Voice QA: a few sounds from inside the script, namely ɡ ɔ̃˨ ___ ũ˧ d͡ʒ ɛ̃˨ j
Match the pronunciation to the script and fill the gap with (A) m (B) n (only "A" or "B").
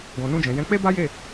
B